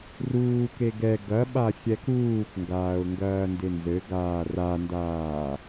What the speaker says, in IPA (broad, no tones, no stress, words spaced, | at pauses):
ruːke ɡɛ ɡɐɓaxʲɛ kuːkŋɡaːʊ̯ŋɡɐːndɪ nzɘɡaː randaː